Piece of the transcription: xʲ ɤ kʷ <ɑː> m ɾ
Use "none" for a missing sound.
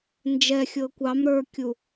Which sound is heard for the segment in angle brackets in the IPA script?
ɑ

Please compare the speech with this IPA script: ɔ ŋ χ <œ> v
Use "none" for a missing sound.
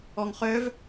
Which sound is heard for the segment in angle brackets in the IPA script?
œ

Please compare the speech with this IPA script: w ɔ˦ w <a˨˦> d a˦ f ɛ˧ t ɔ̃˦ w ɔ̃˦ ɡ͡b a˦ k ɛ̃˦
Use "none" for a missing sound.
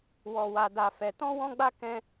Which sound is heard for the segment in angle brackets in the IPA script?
a˦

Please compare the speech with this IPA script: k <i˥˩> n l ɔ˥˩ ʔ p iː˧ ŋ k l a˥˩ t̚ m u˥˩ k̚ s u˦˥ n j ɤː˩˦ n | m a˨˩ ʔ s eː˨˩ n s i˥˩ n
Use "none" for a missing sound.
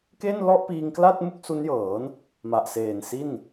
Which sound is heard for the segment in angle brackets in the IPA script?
e˥˩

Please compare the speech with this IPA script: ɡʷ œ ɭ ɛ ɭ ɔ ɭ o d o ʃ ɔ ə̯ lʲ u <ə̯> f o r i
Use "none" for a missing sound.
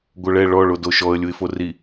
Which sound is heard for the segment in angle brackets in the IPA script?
ɪ̯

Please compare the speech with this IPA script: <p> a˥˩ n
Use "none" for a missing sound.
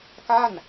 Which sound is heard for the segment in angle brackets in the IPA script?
k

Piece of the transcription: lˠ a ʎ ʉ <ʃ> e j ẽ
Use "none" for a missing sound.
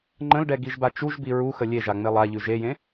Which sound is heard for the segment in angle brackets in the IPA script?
ʒ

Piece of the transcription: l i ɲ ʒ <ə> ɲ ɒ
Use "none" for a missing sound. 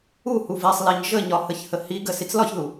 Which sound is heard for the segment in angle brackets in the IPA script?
ə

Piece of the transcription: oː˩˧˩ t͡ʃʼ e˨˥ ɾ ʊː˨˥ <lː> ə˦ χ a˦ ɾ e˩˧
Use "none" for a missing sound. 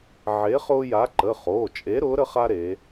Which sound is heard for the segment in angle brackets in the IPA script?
ɾ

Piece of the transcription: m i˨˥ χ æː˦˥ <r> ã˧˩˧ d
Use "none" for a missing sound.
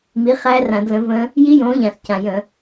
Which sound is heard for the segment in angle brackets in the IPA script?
r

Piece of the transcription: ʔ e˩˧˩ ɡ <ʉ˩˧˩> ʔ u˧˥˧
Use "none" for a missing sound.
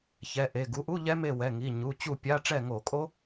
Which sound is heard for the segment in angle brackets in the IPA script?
u˩˧˩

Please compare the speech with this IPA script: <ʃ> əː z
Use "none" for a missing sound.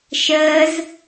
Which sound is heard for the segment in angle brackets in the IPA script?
ʃ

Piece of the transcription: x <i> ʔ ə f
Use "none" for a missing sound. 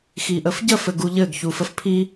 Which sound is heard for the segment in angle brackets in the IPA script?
i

